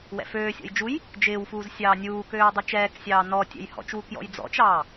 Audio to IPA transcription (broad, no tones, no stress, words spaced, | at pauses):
wɛ̰føːsʲɔ̰j d͡ʒuj | d͡ʒɪːwfuːz sʲɑːnʲuːkøː dˤɛt͡ʃɛːksʲɑː nɔtʲɛ̰j hɔ̰t͡ʃwu kjɔ̰jd͡zɔ̰t͡ʃɑː